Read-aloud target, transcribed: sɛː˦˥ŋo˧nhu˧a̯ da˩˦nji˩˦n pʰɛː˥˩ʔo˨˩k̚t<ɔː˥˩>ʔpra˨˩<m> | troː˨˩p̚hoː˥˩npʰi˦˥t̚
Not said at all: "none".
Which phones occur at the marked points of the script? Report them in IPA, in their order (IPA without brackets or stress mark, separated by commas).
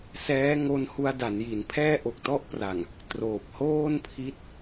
ɔ˥˩, ŋ